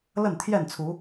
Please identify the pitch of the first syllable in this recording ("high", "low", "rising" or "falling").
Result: falling